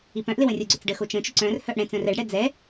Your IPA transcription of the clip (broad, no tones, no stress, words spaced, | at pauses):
ipœ̃ʔlɪ wə̃rʲoɡ͡ǀʏt͡s ɖəxo t͡ʃə̃t͡ʃʊ ǀœ̃r hœʔɽɛ̃t͡sœ̃r ɛɖɽɛ d͡zɛ